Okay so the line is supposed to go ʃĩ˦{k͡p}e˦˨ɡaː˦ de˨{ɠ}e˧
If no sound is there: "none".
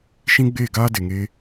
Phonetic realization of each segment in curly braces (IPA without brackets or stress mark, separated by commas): ɡ͡b, ŋ